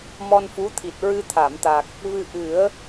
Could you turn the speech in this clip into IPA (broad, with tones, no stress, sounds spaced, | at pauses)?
m ɔ˧ n f u˧˥ t̪ʰ i˨˩ t̚ ɹ ɨ˧ t̪ʰ a˨˩˨ m t̪ a˨˩ k̚ | v ɨ˧ ʔ ɨ˨˩˦ ə̯